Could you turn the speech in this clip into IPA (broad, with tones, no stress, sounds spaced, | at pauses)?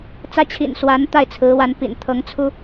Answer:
t͡s ä˥ t͡ɕʰ ḭ˨˩ n s w a˧˥ n t̪ a˥˩ ɪ̯ t͡sʰ ɹ̩˧˥ w a˧˥ n p ḭ˨˩ n t̪ʰ ɤ˧˥ ŋ t͡sʰ u˥